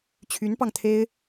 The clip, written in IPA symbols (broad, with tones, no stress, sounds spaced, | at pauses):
t͡ɕʰ y˧˥ n p ɑ˧ ŋ t̪ʰ e˥ ɪ̯